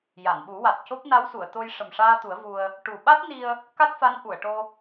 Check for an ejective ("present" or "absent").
absent